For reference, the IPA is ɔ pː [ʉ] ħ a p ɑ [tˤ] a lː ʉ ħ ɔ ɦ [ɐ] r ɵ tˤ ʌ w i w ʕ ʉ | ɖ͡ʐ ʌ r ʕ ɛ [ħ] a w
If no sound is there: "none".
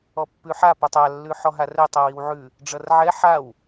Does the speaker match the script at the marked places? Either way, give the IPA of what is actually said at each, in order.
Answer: ʉ, tˤ, a, ħ

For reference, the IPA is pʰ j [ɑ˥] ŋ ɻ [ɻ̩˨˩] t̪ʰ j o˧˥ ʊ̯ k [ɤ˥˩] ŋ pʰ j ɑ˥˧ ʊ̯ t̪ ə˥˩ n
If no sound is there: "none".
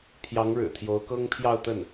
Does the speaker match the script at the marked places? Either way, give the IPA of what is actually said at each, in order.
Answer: ɑ˧˥, ɻ̩˨˩, ɤ˥

